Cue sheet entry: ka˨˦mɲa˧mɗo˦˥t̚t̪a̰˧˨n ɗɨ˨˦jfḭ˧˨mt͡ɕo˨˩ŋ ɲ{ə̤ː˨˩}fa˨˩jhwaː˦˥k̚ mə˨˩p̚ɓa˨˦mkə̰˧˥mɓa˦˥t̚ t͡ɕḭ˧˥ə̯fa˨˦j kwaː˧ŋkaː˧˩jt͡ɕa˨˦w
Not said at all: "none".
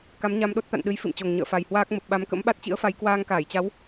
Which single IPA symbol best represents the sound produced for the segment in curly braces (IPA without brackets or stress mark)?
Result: ə̰ː˧˨